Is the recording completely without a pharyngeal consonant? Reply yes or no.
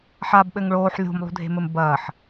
no